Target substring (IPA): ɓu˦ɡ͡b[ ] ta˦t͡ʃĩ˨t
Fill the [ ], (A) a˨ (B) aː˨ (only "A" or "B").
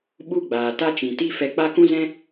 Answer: B